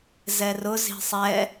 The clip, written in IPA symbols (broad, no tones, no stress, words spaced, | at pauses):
zɛrʊ zi̤sˤɛ